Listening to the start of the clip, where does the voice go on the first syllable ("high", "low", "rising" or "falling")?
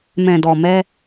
low